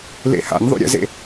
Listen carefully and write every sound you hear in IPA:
l ḛ h a̰ nʲ ðˤ ṵ ɾʲ ə̰ z ḛ

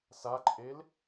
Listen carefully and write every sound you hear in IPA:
s a ǃʼ e l

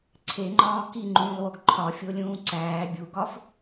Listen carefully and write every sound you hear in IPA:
ǀʰ e ŋ͡ǃ ɒː k i ŋ͡ǃ ũː lˠ w o ɡ ǃʰ ɒ fʲ o lʲ ũː ǀ æː bʲ u ɡ ɒ f

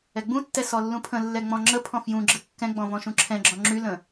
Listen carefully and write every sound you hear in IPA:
ɛ ɡ͡b ũ tː ɛ s ɔ lː ũ pʰ ə̃ lː ɛ ŋ͡m ɔ̃ ŋ͡ǁ ə pʰ ɔ̃ f j ũ ɡ͡ǁ ɘ kː ɛ̃ ɡ͡b ɔ̃ v ɔ̃ ʃ ũ ǁʰ ɛ̃ ɡ͡ǁ ɔ̃ ŋ͡ǁ y l ə̃

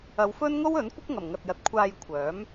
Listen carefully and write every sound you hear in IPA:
ɐ˨˧ w f ɵ˥ n ŋ o˥ w ɵ˨˥ n kʷ ɪ˥ k̚ ŋ ɐ˨˩ m ŋ ɐ˨ t̚ j ɐ˨ t̚ kʷʰ aː˧ j kʷʰ œː˨˥ m

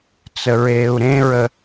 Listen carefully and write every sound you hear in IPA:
t͡s ə ɹ eː u̯ ɾ ẽ ɹ ə

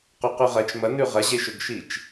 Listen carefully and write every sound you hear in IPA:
q o q ʉ ʁ ɐ t͡ʃ m ɐ n ʉ ʁ ɐ ʑ e ʃ ɵ ɡ ʃ i t͡ʃ

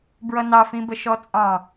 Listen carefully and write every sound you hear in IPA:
b ɹ ʌ n ɑ f ĩ b ə ʃ ɔ t͡sʼ ɑ̃

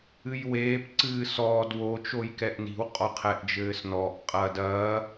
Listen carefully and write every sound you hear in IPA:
ɨ j w eː p ǀ ɨː s ɔː d w o t͡ʃ o j k ɛ ʔ n i̤ w qʼ ɔ qʰ ɛ ʔ d͡ʒ ɘː s n ɔː ʔ qʼ ɐː d ɐː

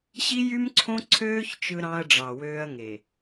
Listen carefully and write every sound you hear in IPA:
ɕ i˦ j y˦ m ǀʰ õ˦ ǀʰ øː˦ ç t͡ʃ ɯ˦ ɾ ɑ̃˦ ɐ̯ ɖ͡ʐ ɑ˨ w øː˦ ɐ̯ ŋ e˨

